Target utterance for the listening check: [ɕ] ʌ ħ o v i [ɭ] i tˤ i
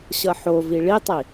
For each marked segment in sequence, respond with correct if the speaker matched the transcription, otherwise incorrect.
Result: correct, correct

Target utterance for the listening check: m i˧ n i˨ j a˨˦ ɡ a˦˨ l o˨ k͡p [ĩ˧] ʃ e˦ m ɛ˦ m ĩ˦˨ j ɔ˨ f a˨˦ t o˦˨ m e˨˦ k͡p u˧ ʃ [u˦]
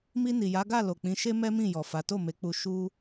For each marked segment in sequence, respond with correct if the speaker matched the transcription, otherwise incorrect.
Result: incorrect, correct

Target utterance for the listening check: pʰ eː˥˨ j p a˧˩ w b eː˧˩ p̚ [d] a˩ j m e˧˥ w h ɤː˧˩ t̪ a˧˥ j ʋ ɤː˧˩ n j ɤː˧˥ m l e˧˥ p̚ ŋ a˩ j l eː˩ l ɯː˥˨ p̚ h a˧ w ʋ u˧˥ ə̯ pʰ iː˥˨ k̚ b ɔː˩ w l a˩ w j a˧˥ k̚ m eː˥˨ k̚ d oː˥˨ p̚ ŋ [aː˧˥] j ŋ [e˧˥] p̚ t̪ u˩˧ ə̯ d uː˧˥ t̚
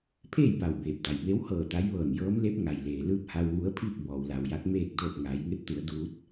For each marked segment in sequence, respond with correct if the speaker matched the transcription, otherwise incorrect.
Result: correct, incorrect, correct

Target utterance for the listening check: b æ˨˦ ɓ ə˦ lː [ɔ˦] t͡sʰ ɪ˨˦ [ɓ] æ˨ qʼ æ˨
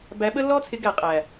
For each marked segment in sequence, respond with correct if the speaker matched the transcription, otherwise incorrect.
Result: correct, incorrect

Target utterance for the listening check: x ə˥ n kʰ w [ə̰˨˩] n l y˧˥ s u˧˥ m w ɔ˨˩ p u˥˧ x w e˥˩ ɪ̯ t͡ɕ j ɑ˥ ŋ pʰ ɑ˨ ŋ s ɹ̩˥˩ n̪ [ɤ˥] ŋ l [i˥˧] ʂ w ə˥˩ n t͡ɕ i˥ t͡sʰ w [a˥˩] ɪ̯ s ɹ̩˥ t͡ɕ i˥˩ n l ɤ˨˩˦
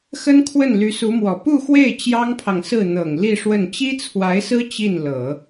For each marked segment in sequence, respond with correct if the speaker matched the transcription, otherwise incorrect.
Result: incorrect, incorrect, correct, incorrect

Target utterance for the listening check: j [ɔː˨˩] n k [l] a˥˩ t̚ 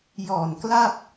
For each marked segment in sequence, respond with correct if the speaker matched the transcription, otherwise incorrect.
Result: correct, correct

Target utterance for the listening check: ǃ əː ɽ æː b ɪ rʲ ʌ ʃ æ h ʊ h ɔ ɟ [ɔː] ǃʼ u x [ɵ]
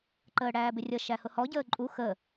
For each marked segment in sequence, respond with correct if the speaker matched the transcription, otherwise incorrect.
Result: incorrect, incorrect

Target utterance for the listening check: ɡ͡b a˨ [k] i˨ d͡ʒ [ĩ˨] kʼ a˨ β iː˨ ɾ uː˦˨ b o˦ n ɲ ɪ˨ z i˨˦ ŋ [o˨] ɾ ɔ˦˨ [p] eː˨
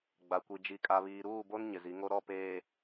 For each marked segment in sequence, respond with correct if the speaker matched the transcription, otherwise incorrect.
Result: incorrect, incorrect, incorrect, correct

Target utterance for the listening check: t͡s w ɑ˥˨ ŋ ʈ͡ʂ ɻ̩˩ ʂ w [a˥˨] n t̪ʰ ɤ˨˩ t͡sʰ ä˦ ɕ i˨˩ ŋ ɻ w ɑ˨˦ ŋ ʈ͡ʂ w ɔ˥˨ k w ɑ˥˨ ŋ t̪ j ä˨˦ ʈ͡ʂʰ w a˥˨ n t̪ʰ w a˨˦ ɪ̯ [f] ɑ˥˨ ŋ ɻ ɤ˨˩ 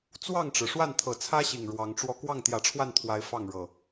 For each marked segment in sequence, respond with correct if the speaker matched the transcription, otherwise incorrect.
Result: correct, correct

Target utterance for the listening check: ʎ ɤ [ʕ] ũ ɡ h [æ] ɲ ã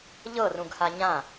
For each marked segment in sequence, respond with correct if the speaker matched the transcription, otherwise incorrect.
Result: incorrect, incorrect

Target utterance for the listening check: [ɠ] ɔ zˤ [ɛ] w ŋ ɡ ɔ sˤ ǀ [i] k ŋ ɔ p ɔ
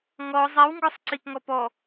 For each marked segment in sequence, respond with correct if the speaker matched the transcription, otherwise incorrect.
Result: incorrect, correct, correct

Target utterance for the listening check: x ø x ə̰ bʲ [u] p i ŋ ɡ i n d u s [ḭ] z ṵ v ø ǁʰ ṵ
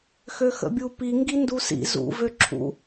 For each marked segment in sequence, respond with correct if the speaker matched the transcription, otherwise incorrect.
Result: correct, correct

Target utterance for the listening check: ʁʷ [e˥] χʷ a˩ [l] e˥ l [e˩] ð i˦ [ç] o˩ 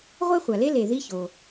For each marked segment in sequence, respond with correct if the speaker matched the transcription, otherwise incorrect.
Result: correct, correct, correct, correct

